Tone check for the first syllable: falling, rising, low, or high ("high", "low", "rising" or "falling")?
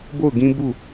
falling